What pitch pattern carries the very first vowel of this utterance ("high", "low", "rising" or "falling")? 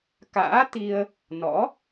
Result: rising